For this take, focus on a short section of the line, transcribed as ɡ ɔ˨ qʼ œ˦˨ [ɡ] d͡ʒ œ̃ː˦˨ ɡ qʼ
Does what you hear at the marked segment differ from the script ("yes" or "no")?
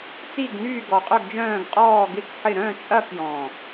no